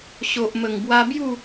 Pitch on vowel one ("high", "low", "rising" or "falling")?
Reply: low